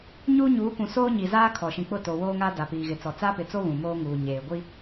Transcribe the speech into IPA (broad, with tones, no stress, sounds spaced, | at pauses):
ɲ uː˦ ɲ uː˨˦ kʷ ũ˨ s oː˦ ɲ i˨ z aː˦ kʰ ɔ˨ ʃ ĩ˨ k͡p ʊ˦˨ t o˨ w oː˦ ŋ aː˦ d a˨ p iː˨ ɣ ɪ˨ t͡s ɔ˨ t͡s aː˦ p ɪ˨ t͡s o˦ β ũ˨ m oː˦ ŋ uː˨ ɲ eː˨ ɡʷ i˦